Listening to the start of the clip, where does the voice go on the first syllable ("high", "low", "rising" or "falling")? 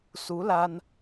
rising